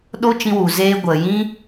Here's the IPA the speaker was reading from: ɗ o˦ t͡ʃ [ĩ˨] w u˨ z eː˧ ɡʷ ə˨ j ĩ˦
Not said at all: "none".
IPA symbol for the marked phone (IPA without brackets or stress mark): ĩ˧